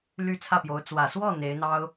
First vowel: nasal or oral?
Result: oral